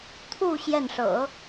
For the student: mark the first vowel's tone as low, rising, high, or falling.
falling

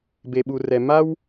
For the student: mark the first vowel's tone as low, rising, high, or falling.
low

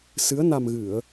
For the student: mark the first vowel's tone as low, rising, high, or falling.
rising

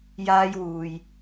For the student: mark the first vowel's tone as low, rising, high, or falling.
high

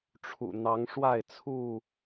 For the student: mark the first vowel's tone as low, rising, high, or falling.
low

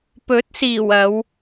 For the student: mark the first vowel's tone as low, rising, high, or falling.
rising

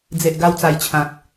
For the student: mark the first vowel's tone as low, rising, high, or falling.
low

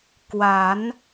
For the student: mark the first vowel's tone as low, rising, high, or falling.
rising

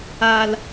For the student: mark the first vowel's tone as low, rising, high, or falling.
low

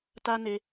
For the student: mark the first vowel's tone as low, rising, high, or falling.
high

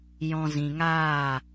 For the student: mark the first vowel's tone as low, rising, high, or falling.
low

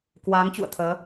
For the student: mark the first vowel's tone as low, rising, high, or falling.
rising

